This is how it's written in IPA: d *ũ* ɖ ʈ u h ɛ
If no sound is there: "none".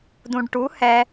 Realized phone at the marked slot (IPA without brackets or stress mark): ũ